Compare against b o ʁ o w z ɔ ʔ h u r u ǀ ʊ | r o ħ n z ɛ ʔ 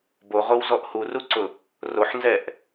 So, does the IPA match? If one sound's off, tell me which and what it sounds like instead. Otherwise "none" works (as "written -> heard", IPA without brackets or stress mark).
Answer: none